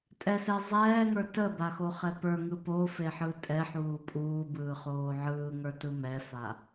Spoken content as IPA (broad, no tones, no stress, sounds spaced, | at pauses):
tʼ ɛ s ɛ zˤ ɛː ŋ ə˞ t ə b a x o χ ɛ p ə˞ ŋ ɯ p o f e ħ ɯ tʼ ɛ ħ uː pʼ uː b ɯː χ oː ʕ ɯː ŋ ə˞ t ɯ m ɛ f a